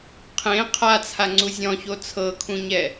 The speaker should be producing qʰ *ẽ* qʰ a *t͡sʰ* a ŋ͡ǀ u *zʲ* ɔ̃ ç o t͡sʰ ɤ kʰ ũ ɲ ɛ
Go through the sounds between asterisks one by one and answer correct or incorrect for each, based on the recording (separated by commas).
correct, correct, correct